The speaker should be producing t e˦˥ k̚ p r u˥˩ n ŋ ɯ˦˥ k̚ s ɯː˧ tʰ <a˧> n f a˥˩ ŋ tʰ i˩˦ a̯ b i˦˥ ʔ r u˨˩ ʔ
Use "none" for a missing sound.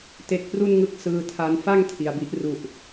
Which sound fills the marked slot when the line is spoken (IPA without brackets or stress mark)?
a˧